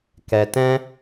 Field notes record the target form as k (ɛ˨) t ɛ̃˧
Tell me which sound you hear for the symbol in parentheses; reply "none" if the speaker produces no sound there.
ɛ˨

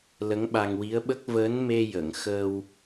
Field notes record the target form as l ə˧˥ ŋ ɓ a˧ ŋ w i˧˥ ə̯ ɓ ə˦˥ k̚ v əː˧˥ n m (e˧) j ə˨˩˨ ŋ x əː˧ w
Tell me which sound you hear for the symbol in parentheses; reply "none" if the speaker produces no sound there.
e˧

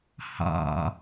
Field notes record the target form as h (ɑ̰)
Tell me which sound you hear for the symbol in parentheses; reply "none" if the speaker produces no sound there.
ɑ̰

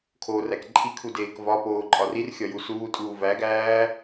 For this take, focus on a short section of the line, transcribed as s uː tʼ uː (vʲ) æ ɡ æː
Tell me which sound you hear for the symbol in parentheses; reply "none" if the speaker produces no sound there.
v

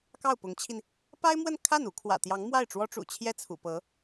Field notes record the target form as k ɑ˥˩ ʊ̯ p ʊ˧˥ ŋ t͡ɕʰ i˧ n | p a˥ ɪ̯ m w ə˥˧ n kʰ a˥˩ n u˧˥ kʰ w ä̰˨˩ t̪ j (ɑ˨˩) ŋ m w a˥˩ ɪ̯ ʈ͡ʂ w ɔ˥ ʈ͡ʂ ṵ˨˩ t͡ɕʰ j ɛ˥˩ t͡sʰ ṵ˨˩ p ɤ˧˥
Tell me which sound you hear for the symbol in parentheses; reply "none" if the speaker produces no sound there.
ɑ˧˥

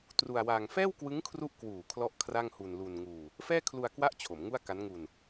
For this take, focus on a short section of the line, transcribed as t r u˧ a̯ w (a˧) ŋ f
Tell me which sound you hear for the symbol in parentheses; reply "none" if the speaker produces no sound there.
a˧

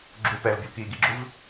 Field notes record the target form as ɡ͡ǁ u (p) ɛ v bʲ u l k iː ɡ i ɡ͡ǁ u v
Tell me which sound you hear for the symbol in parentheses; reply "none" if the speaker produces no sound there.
p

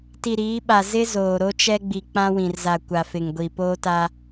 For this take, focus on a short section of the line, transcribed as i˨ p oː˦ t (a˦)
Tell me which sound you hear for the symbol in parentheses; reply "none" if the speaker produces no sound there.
a˦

